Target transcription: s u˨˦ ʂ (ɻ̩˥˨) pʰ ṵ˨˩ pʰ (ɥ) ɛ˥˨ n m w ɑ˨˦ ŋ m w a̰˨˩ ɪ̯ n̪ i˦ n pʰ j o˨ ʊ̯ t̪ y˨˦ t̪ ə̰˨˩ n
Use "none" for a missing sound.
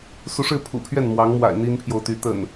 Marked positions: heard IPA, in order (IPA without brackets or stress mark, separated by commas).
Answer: ɻ̩˥˨, ɥ